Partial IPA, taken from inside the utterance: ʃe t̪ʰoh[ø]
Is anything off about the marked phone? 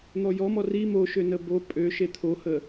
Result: yes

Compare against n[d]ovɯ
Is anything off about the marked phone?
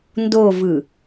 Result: no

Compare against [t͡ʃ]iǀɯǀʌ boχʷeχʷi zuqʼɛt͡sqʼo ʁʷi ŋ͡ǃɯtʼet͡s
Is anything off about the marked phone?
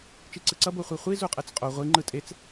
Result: no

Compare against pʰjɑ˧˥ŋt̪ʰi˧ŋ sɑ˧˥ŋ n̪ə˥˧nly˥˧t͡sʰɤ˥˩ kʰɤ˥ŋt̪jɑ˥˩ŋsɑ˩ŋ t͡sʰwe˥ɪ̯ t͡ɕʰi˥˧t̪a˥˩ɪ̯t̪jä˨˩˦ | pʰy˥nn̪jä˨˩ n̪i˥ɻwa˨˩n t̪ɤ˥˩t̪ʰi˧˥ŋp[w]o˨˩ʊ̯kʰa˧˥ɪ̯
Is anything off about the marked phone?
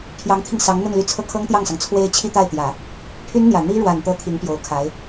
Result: yes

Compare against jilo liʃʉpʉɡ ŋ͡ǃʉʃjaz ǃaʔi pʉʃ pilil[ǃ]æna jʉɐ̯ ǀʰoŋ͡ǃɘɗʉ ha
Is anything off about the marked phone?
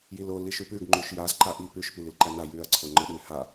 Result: no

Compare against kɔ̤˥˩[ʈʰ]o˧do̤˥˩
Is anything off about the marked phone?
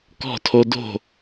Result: yes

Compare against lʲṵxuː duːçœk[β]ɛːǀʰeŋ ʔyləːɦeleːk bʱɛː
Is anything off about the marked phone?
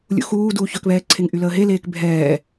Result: no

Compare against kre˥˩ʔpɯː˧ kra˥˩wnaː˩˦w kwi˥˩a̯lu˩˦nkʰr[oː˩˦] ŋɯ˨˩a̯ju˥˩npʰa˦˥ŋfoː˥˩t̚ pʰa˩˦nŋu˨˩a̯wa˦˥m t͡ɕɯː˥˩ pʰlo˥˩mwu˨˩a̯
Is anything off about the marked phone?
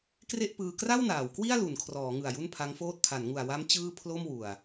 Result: yes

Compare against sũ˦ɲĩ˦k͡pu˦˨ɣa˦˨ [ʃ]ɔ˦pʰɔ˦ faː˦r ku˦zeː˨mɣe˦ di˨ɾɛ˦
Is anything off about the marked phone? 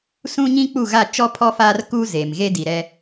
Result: yes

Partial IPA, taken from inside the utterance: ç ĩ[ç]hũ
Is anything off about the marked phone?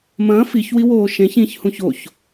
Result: no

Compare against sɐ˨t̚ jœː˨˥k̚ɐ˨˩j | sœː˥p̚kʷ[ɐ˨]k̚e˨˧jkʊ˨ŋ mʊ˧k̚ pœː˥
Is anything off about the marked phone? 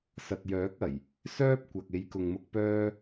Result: no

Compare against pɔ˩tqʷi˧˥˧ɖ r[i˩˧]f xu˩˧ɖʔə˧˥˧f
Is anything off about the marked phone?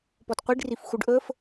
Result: yes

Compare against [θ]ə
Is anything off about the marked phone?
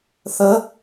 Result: no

